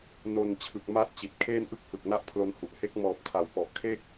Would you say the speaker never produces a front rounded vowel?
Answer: yes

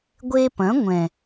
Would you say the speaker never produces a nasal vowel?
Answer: no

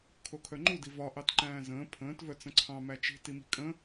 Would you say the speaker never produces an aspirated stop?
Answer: no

